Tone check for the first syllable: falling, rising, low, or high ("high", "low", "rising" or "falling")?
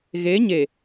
rising